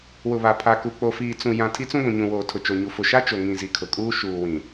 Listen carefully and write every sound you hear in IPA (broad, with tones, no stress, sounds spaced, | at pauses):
w ʊ˨ β a˨ pʰ a˨ k u˨ k͡p o˨ f iː˨ t͡s ũ˨ j ã˨ tʰ i˦ t͡s ũ˦ ɡʷ ũ˨ ɲ ũ˨ w oː˨ tʰ ʊ˨ t͡ʃ o˨ ɲ u˨ f ʊ˨ ʃ a˦ t͡ʃ o˨ ŋ ĩ˨ z i˨ kʰ ʊ˨ kʼ uː˦ ʃ uː˨ w ĩ˨